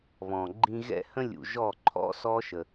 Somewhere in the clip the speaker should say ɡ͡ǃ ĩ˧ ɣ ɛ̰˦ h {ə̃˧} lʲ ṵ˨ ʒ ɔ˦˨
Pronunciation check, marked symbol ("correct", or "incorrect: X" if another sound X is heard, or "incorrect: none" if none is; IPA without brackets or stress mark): correct